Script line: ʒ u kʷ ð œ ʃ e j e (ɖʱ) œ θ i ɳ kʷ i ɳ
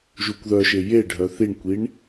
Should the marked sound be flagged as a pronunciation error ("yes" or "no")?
no